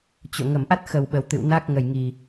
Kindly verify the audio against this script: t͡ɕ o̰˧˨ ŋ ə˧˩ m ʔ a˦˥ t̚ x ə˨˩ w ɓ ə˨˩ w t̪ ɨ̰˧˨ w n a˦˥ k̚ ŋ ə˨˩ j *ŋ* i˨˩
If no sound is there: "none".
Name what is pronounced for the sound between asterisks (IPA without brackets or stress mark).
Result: ŋ